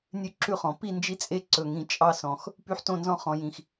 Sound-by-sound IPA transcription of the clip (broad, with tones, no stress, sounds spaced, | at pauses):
nʲ ʉ˦ ǁ ʉ˦ χ ɔ̃˨˩ p i˥˨ n d͡ʒ i˦ t͡sʼ e˦ ǀ ɵ˨˩ ŋ ĩ˨˩ t͡ʃʼ ɑ˦ s ɔ̃˨˩ x | p y˦ ħ t õ˥˨ n z ɔ̃˦ χ ɔ̃˨˩ j ĩ˨˩ x